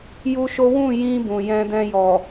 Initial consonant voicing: voiced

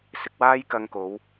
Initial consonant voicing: voiceless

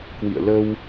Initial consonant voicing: voiceless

